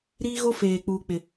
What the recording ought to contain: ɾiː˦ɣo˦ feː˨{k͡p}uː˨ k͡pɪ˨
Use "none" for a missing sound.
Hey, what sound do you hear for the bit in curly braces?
k͡p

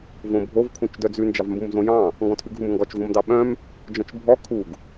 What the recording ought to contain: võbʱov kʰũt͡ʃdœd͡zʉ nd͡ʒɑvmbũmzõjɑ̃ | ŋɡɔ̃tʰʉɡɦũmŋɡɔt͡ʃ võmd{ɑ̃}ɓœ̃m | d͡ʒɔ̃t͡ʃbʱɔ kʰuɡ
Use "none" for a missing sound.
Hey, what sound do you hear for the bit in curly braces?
ɑ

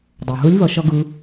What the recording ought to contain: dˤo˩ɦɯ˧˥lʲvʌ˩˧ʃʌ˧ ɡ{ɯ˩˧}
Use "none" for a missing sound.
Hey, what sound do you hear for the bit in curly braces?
ɯ˩˧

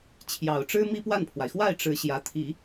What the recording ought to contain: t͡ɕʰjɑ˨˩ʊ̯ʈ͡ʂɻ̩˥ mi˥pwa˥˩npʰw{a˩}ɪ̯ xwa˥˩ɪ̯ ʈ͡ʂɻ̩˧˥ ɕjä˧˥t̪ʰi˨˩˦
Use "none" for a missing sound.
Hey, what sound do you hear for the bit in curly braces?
a˩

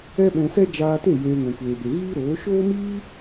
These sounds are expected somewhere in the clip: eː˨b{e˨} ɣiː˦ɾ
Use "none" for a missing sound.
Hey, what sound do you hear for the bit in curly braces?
e˨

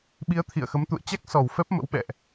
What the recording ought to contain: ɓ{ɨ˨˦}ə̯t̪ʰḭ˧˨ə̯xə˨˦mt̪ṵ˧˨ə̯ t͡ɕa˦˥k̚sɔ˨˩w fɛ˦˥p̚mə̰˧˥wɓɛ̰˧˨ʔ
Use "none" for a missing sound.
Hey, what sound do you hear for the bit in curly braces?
i˨˦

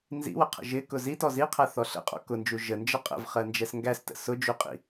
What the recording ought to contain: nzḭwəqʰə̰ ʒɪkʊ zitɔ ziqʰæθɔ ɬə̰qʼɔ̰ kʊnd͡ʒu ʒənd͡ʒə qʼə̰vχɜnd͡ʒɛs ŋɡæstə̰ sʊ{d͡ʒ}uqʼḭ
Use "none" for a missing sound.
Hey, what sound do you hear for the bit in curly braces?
d͡ʒ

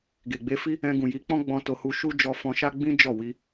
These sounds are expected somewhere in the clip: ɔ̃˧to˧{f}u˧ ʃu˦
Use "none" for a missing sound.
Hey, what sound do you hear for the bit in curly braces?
h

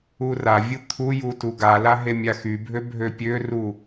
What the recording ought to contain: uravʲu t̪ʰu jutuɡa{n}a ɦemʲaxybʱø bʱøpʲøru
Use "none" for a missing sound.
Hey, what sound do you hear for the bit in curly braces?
l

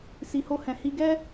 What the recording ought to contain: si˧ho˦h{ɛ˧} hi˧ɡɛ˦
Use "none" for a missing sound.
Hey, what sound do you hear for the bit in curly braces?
ɛ̃˧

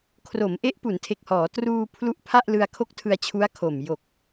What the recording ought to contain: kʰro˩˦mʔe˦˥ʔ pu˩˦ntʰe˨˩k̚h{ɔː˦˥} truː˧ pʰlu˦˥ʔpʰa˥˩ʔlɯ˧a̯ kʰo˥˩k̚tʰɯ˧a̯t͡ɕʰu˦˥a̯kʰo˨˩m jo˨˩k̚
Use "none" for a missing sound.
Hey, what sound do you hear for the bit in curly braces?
ɔː˩˦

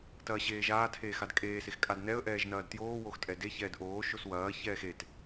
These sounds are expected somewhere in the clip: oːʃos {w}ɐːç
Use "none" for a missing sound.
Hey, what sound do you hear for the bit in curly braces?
w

